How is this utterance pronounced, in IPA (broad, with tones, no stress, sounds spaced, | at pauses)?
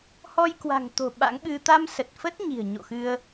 h ɔ˧ j k w a̤˨˩ ŋ t̪ o̤˨˩ ɓ a̰˧˥ ŋ ɓ ɨ˧ t̪ a˧ m s ə˨˩ t̚ f ə˦˥ t̚ ɲ i̤˨˩ ə̯ ɲ o̰˧˨ x ɨ˧ ə̯